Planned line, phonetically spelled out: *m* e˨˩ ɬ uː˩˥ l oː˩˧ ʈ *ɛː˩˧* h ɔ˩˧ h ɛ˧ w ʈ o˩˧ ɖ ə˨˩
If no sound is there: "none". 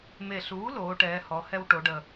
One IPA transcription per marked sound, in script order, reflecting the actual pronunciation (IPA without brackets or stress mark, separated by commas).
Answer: m, ɛː˩˧